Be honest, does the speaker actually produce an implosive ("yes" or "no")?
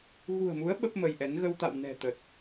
yes